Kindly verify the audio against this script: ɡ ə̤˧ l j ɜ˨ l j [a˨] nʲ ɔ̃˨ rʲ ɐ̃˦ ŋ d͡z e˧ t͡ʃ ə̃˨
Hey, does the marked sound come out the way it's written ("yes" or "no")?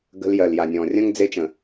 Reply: yes